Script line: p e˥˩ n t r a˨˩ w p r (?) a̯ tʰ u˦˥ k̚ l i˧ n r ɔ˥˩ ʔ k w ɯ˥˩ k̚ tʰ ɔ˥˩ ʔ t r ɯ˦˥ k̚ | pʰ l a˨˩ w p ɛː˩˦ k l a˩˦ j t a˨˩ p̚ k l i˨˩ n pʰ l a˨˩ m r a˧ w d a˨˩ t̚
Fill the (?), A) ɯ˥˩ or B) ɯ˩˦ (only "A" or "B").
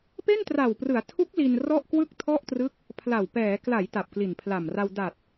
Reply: B